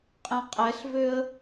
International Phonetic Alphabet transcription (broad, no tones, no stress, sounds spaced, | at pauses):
qʼ ẽ qʼ ɛ ɬ v ø ə̯